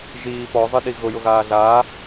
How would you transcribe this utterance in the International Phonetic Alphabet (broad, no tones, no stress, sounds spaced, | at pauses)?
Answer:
ʒ iː p ɔ zˤ ɨ ɗ i ɣ ʊ j ʊ ɣ aː ɮ a